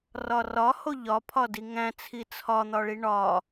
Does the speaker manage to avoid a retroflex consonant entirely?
no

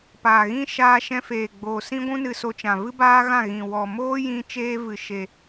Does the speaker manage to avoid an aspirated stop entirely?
yes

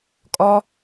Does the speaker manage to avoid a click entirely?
yes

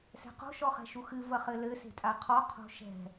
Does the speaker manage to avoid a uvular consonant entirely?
no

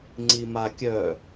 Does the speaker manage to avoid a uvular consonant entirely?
yes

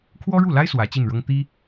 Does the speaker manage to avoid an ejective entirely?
yes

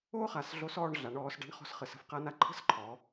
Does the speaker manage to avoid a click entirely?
no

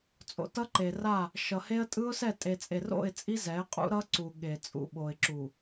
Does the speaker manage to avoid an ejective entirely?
no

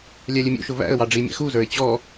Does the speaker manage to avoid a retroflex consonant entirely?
no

